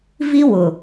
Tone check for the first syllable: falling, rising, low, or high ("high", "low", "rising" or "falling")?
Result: high